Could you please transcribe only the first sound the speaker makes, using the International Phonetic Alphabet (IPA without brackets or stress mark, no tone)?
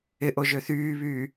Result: ɪ